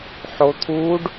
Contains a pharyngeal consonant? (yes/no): yes